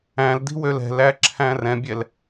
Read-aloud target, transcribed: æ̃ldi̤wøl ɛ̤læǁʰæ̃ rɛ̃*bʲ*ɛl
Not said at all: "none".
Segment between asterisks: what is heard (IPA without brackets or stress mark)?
bʲ